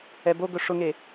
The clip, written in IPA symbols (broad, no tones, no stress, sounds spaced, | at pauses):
ɛ b o ɡ ɵ ʂ ʊ ŋ e